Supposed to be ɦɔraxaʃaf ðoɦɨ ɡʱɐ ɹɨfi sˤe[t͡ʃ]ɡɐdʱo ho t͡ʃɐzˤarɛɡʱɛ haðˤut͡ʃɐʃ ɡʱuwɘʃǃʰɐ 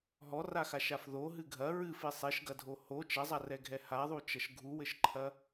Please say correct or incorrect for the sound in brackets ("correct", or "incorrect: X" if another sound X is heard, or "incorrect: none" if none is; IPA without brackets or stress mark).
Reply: incorrect: ʃ